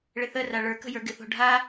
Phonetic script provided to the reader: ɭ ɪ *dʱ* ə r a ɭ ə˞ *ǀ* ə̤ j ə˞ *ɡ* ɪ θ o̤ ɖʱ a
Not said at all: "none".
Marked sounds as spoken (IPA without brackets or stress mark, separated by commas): θ, k, ɡ